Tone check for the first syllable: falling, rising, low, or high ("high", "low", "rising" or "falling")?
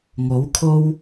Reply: rising